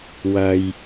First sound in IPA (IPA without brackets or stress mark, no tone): w